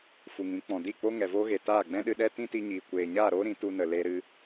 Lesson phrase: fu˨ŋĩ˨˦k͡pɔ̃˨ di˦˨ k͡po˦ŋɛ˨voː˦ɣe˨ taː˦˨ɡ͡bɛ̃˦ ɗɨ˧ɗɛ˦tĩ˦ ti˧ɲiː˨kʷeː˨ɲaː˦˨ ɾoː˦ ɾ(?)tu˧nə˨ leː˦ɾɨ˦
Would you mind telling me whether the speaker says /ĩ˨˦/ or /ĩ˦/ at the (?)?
ĩ˨˦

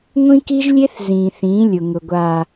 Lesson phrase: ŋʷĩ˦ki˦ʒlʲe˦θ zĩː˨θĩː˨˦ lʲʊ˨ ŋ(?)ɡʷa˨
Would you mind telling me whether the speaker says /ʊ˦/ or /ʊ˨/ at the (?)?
ʊ˨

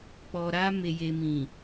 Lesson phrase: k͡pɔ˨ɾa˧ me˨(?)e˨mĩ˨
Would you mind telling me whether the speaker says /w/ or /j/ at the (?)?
j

